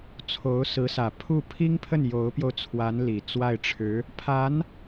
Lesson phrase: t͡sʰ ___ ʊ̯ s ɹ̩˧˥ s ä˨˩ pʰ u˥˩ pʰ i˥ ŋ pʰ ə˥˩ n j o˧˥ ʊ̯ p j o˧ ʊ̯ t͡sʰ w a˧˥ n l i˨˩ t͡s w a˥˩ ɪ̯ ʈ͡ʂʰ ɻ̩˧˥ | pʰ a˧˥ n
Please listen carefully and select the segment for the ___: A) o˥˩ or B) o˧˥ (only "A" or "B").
B